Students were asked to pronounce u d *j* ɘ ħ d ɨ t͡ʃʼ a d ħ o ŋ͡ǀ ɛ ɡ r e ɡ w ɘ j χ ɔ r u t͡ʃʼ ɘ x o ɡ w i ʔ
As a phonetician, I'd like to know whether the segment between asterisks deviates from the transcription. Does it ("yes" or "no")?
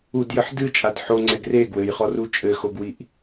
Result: no